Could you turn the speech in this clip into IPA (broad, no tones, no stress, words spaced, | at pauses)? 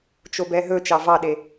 t͡ʃobɛɦɵ t͡ʃɑvɑɗe